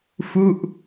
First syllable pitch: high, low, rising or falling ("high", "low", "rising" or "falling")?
falling